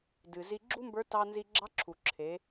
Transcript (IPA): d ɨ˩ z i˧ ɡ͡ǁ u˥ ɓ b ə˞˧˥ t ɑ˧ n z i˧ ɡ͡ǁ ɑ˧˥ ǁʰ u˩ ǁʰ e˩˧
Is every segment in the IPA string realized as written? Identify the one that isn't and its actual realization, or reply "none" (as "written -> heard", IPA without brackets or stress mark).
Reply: ɓ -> m